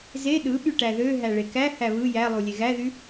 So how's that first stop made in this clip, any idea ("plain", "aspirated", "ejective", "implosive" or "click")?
implosive